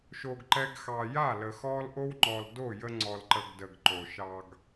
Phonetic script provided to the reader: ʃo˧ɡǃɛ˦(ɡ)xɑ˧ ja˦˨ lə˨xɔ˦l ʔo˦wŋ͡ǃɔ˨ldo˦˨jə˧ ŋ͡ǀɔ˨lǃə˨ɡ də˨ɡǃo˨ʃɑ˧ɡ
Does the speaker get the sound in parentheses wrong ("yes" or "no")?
no